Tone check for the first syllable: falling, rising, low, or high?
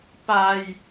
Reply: high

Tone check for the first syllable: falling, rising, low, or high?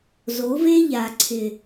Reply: rising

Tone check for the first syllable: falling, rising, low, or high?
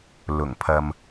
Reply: low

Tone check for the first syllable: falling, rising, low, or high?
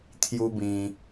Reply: high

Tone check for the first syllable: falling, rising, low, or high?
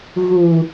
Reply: low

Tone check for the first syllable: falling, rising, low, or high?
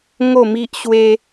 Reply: falling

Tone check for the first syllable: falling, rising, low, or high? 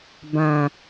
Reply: low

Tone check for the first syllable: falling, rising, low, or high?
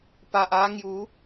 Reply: low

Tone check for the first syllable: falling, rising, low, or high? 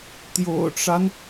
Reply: low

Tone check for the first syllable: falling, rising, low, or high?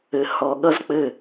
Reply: low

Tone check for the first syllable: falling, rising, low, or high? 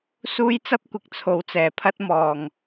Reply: high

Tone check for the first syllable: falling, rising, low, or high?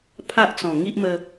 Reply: high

